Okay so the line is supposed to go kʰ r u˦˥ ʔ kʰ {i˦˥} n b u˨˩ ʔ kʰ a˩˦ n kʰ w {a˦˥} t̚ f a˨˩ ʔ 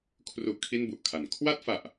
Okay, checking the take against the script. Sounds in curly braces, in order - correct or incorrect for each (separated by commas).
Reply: incorrect, incorrect